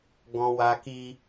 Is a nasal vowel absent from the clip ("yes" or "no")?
no